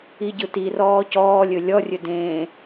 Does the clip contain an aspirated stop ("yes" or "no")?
no